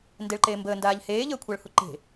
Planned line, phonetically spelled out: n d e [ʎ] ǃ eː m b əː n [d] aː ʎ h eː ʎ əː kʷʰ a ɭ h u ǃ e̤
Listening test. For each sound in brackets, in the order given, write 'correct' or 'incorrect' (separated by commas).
incorrect, correct